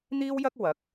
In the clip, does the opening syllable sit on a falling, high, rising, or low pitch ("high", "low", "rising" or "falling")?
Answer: high